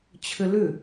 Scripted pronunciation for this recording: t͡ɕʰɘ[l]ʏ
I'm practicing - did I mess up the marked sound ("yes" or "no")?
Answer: no